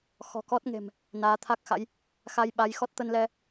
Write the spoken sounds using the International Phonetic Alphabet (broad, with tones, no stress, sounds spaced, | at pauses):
x ɔ̤˨˩ k ɔ˦˥ t̚ ŋ e̤˨˩ m | n aː˨˦ t̪ʰ a˦˥ k̚ x a̰˧˥ j | x a˧ j ɓ a˨˦ j x ɔ˦˥ t̚ t̪ ə˧ n l ɛ˧